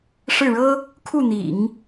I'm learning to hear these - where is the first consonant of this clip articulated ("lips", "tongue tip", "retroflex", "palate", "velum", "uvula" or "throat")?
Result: retroflex